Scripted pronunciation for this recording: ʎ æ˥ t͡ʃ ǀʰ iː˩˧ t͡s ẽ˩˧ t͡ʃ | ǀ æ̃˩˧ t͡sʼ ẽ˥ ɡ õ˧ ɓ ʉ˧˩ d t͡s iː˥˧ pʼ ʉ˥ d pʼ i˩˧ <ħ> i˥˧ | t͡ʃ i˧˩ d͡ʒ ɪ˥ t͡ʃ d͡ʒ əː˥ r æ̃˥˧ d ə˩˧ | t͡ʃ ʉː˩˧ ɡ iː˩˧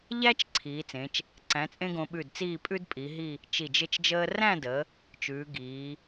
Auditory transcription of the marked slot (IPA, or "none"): ɦ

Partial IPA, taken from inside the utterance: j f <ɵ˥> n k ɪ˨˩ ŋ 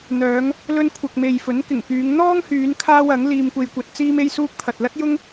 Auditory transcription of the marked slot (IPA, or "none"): ɵ˨˥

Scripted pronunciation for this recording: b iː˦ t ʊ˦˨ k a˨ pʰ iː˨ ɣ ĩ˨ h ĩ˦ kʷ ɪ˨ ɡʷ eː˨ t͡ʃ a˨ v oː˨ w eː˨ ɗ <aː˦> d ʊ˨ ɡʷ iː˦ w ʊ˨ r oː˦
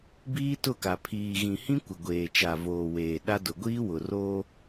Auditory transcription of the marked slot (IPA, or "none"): a˦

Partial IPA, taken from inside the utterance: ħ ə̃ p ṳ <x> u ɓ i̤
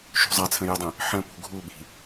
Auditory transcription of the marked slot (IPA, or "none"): ɡʱ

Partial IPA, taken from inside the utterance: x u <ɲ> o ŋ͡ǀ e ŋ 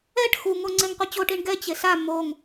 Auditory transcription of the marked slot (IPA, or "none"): ŋ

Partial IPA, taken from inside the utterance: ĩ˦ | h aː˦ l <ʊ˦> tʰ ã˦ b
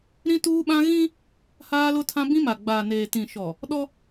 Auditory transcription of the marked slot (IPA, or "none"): ʊ˦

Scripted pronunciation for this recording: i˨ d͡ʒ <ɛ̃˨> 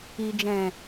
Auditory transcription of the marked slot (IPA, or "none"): ɛ̃˨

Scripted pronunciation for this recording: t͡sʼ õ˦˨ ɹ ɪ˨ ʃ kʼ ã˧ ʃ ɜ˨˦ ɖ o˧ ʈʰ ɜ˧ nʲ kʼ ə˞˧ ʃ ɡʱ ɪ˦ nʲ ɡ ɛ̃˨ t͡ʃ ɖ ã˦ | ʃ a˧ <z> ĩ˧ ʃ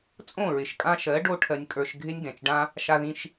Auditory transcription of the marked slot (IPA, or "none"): ð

